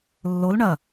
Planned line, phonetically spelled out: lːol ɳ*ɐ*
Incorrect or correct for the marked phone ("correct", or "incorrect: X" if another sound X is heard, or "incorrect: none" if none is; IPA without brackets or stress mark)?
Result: correct